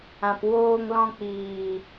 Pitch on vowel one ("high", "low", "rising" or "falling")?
low